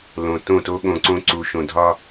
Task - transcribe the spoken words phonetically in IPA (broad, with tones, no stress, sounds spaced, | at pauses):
l õ˨ t õ˦˨ t o˦ ɠ õ˨ ǀ õ˦ ǀ u˨ ʃ õ˨ dʱ ɒ˦